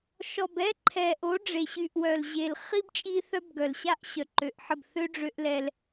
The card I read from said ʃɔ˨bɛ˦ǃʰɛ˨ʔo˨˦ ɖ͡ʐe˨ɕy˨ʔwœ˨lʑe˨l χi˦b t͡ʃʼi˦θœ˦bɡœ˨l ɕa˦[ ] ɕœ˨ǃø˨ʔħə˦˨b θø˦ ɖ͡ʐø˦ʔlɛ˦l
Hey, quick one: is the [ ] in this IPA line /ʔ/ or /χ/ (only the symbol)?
ʔ